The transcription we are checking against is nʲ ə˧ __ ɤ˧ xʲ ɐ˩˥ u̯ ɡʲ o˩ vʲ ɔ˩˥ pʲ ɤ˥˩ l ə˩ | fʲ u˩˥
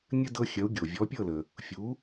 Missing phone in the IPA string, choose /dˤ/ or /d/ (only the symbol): d